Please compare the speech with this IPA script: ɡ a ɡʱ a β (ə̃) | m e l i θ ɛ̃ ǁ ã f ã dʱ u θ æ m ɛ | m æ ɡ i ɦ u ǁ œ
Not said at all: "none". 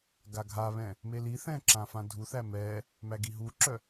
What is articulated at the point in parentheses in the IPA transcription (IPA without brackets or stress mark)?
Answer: ɛ̃